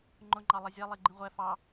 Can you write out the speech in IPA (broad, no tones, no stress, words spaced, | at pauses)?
ŋ͡ǃʊŋ͡ǃɑ lˠɛzʲɛlˠi ɡ͡ǃĩʁʷɛ fɑ